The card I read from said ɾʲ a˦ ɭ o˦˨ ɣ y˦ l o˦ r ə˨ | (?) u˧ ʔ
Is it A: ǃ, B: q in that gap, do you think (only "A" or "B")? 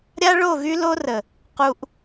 B